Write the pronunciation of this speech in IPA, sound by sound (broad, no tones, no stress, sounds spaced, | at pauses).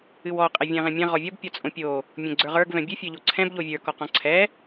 ɨ w ɔ qʼ ɛ vʲ ɛ̃ ʁ ɛ̃ mʲ ɛ̃ ʁ ɔ vʲ ɔ b pʲ ɔ t͡sʼ õ pʲ o | mʲ õ ɡ͡ǀ ə˞ ʁ ə˞ ɡ v ɛ̃ bʲ ɨ fʲ ə˞ ʎ o ǀʰ ɛ̃ b ʎ o vʲ ə˞ k ɔ q ɔ̃ ǀʰ ɛ